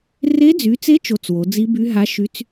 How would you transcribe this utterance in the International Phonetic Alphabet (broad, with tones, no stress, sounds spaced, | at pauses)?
r e˦˥ d͡z y˨˦ t͡s e˦˥ t͡ʃ o˦˥ t͡s w o˨˦ d͡z i˦˥ b y˦˥ ɦ a˦˥ ʃ y˦˥ t͡s